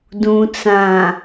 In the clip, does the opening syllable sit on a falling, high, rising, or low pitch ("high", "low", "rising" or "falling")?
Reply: low